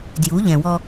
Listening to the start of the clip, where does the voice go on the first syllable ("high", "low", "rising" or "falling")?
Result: rising